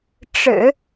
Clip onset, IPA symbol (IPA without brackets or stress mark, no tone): ʈ͡ʂ